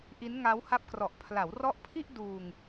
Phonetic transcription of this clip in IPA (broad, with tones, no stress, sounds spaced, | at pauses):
ʔ i˦˥ n ŋ a˦˥ w h a˦˥ p̚ k r ɔ˨˩ ʔ pʰ l a˩˦ w r ɔ˦˥ ʔ pʰ i˥˩ ʔ d uː˧ ŋ